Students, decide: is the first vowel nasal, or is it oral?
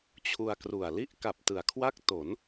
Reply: oral